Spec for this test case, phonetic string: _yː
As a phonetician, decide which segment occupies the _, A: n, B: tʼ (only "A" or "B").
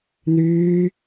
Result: A